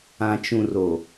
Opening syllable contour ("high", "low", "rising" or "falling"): low